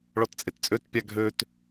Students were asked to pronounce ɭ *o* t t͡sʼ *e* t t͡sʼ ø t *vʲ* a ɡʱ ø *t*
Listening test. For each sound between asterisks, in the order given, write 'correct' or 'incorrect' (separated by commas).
incorrect, correct, incorrect, correct